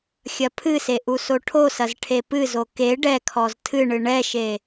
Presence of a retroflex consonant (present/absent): present